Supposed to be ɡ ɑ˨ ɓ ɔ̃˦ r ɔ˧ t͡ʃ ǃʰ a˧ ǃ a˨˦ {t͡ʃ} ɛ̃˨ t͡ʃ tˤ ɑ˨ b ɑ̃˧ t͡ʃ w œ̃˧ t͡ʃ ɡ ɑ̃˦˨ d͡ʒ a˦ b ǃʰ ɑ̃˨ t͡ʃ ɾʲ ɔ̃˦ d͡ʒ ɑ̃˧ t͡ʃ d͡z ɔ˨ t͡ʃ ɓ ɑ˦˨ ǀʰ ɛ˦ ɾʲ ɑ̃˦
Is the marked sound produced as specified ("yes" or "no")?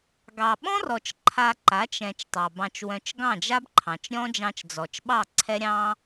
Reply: yes